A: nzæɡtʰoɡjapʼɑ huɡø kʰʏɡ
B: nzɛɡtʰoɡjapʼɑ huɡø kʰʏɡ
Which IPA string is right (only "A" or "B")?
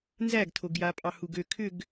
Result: A